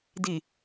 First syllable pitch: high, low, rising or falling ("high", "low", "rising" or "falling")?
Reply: low